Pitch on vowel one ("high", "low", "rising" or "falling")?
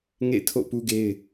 falling